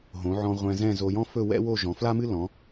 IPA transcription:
ɦ õ˩˧ ʕ ɔ̃˧ ʁʷ ɛ̃˧ z ɛ̃˥˧ z o˧ j ɔ̃˥ f ɵ˥˧ w ɛ̰˥ w o˥˧ ʒ ɔ̃˩˧ f l a˥ m ɨ˥ l ɔ̃˩˧

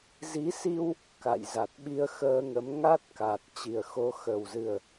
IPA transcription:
z i˨˦ s i˧ w | k a̰˧˨ j z a˨˩ t̚ ɓ i˧ ə̯ x əː˧ ŋ ə˨˦ m ŋ a˦˥ t̚ k a˨˩ t̚ t͡ɕ i˨˩ ə̯ x o˨˦ x ə˨˩ w z ɨ˨˩ ə̯

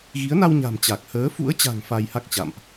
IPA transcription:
ɣ i˨˦ ə̯ n a˧ w ɲ a̤˨˩ m t͡ɕ a˨˩ k̚ h əː˨˦ f ṵ˧˥ ə̯ t͡ɕ a̤˨˩ ŋ f a˧ j h a˦˥ k̚ t͡ɕ a̰˧˨ m ʔ

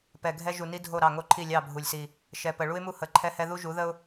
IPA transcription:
p ɛ˨ ɡʱ ɛ˦ ʒ u˨ n i˦ dʱ o˦˨ ɾ ɑ˦˨ ŋ o˦ ǃʰ i˦˨ lʲ ɑ˦˨ bʱ u˨ lʲ s i˨ | ʃ ɛ˨ p ə˨ ɭ u˦ ɪ̯ m u˦ h ə˨˦ ǃʰ ɛ˦ h ɛ˦ ð u˦ ʒ u˨˦ ð ə˦ ʊ̯

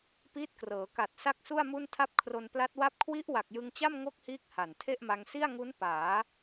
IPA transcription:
p iː˦˥ t̚ k r ɤː˩˦ k a˨˩ t̚ s a˥˩ k̚ s u˥˩ a̯ m u˥˩ n tʰ a˥˩ p̚ kʰ r o˧ n p l a˦˥ t̚ w a˥˩ p̚ kʰ w i˦˥ ʔ w a˨˩ k̚ j ɯ˧ ŋ t͡ɕ a˥˩ m ŋ o˥˩ k̚ h iː˦˥ k̚ h a˨˩ n tʰ e˥˩ ʔ m a˧ ŋ s i˥˩ a̯ ŋ u˦˥ n p aː˩˦

